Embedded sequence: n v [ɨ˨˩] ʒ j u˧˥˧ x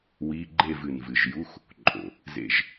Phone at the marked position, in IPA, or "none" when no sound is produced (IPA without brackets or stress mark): ɨ˨˩